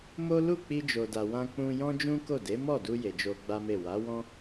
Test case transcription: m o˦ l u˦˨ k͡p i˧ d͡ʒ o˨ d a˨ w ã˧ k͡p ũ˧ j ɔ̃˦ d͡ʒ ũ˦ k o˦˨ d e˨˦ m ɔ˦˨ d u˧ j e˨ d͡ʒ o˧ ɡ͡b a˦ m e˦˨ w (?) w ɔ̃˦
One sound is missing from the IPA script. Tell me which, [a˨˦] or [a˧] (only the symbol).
a˨˦